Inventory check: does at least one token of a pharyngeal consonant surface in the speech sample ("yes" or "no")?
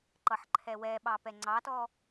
yes